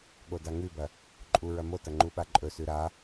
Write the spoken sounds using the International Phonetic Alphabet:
ɠ o d a ŋ ʉ b ɐ | ǃʼ u ɹ ɐ m o t ɐ ŋ͡ǃ u ɓ a ǃʼ ɵ s ʉ ɾ a

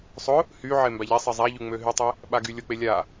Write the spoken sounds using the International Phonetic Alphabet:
sˤ ʊ | h y ʕ e m b a ʎ ɛ sˤ e zˤ a ʎ y ŋ͡m ø ɦ y tˤ e | ɓ a ɡ y lʲ ʊ k͡p e lʲ a

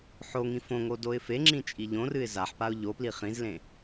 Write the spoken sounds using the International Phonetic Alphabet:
ħ o ŋ ĩ f õ ŋ o d o ɪ̯ f e ŋ͡ǁ ĩ t͡ʃʼ i ʎ õ r ɨ ɪ̯ z a ħ p a ʊ̯ ʎ o p l i χ ĩ z l ẽ

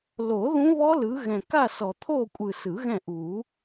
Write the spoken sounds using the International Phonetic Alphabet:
l o˨˩˦ ð ũ˦˥ β ɔ˦˥ l ɯ˨˦ ɣ ɛ̃˨ k a˦˨ s ɔ˨ t̪ʰ o˦˨ kʷʼ ɯ˨ s ɯ˨˩˦ ɣ ɛ̃˦˨ ʔ u˨˩˦

